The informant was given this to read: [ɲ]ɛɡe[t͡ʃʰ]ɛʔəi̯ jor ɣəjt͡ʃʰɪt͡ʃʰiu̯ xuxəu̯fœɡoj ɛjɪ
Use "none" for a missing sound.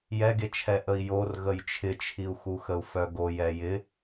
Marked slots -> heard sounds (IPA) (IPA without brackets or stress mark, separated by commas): j, t͡ʃʰ